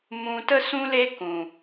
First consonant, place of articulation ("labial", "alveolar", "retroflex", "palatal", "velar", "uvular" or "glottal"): labial